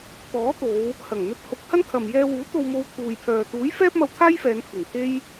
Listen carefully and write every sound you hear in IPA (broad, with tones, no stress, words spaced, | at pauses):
t̪ɔː˨˥t̪o˨˧w | hɐ˨˩ŋn̪ɵ˧t̚ hʊ˨˥k̚hɐ˥n kʰɐ˨mjɛː˧wuː˨˥ t̪o˧wmo˧wt̪ʰuː˨jpʰœː˨ t̪uː˨˥jfɛː˥p̚mɐ˧wt̪ʰaː˥j fɛː˨˧npʰɪ˨˩ŋt̪ʰe˥j